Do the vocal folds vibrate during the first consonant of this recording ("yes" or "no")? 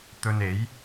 no